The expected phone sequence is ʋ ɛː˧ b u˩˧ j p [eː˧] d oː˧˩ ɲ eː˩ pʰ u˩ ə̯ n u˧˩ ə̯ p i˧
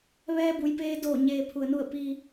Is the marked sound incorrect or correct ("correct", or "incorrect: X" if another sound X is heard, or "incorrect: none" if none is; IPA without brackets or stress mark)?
correct